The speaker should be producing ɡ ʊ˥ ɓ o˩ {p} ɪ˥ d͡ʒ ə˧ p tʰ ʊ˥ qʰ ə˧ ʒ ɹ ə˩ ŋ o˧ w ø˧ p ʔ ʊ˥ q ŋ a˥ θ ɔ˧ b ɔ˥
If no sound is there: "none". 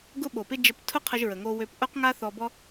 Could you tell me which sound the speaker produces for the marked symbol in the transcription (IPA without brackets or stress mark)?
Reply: p